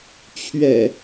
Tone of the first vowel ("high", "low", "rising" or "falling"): low